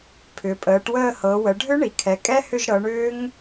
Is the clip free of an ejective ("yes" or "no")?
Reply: no